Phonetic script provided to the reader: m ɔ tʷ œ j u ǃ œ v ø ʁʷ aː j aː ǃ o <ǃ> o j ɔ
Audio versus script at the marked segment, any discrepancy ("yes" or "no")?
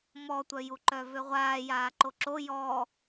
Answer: yes